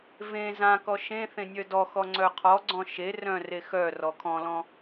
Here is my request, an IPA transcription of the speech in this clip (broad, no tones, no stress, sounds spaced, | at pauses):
v ẽ z ã k ɔ ʃ ẽ θ ẽ nʲ œ d ɔ x ɔ ŋ͡ǀ œ qʰ ɔ ɡ͡ǀ ɔ̃ ʃ e r œ̃ r e x œ r ɔ kʰ ɔ̃ l ɔ̃